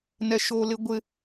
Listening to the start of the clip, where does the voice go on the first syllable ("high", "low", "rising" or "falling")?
high